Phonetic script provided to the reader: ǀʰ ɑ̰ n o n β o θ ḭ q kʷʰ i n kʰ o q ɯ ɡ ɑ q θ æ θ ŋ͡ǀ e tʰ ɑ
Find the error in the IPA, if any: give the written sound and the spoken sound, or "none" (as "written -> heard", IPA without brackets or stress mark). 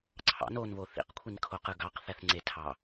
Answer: none